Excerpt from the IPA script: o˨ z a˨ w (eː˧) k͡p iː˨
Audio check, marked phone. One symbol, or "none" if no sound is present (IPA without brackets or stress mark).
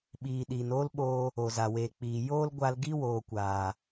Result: eː˨